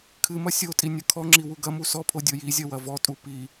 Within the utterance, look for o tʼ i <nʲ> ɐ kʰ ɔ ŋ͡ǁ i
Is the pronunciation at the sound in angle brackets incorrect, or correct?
correct